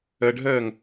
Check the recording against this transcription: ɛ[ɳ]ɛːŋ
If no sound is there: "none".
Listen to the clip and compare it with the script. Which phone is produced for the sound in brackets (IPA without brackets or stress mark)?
ɖʱ